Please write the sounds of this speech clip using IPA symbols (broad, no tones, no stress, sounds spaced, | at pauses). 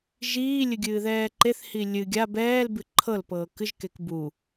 ʒ iː lʲ ɨ ɡʲ ɨː ð ɛː ǃ e θ h i lʲ ɨ ɡʲ a b ɛː l b ɨ ǃʰ ɤ l p ɤː k ɨ ʒ k e k b u